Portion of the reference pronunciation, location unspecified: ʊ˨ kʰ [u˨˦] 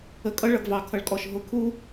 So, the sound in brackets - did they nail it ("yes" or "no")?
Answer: no